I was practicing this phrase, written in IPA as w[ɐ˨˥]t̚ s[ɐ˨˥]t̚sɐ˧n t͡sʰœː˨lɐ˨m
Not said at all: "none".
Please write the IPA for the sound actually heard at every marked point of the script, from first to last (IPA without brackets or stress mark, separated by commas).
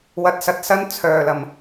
ɐ˨˥, ɐ˨˥